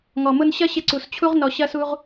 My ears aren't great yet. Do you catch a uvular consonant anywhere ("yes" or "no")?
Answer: yes